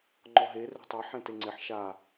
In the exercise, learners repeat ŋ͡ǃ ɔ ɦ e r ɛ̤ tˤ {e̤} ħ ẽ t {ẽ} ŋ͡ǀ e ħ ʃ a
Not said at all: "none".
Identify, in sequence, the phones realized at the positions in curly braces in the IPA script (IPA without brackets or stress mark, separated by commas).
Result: e, e